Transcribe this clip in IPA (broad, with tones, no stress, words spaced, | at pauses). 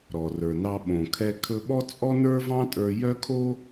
ɾɔ˩rə˞˩nɑ˧ ɓõ˩ kʰɛ˧ kʰɵ˧ɓɔ˥ t͡sʼɔ˥nə˞˥vɑ̃˥ tʼə˞˧ jœ˥kʰo˥